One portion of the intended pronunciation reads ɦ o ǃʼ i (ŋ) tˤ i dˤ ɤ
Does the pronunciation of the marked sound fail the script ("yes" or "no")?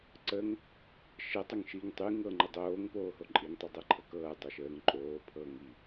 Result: no